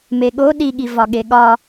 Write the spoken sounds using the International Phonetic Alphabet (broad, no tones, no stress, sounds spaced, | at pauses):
m e ɠ o ɗ i ɠ i v ɒ ɠ e ɠ ɒ